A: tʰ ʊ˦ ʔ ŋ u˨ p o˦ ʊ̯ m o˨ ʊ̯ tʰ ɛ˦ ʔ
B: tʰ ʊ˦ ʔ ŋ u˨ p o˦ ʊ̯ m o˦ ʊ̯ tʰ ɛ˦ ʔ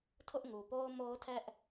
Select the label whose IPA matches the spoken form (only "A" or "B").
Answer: B